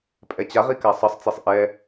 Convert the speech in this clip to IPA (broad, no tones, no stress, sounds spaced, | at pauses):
pʼ ɛ t͡ɕ a ʁ i k a sˤ ʌ sˤ t͡s e sˤ ʔ ɛ